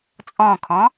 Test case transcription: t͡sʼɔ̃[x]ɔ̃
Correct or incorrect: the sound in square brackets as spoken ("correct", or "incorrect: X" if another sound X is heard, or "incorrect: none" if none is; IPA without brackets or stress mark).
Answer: incorrect: kʰ